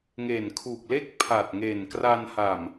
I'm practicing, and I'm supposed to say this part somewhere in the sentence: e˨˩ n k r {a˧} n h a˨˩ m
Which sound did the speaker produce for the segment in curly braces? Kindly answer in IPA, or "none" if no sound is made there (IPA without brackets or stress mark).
a˧